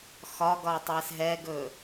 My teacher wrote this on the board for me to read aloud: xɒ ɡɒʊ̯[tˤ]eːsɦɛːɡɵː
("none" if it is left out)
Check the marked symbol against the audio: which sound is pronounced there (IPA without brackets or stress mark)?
tˤ